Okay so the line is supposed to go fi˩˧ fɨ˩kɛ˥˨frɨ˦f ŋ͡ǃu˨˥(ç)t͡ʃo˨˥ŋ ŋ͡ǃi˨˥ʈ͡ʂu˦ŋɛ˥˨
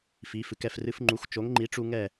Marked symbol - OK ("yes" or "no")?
no